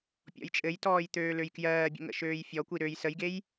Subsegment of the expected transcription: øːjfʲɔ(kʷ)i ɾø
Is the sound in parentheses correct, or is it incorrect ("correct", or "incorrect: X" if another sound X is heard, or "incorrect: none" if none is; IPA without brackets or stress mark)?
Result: correct